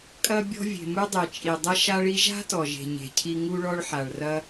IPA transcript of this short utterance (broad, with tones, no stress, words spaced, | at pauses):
kʼɐ˥bʲɔ̤˥ vʲe̤˩mu˥dˤe˩t͡ʃʼi˩ dˤɐ˥ʃa˥ɭi˥ ʒa̤˥tɔ˩ʒe̤˩ ɲe̤˩cʰi˧ ŋu˥ɭɔ˥ɭħa˩ɭ rɐ˥